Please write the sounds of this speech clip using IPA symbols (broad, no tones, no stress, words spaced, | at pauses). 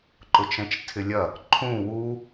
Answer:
ǃʊt͡ʃɛ̃t͡ʃtʰɪlʲɐ | ǃʰũ wu